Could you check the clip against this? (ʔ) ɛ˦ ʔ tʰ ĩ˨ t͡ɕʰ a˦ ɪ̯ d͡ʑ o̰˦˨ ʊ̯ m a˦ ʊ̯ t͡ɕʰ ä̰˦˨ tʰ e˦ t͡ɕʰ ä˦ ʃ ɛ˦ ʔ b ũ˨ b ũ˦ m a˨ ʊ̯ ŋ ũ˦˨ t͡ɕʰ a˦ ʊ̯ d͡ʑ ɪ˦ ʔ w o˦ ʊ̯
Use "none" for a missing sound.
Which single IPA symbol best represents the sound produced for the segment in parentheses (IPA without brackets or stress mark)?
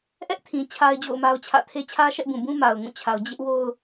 ʔ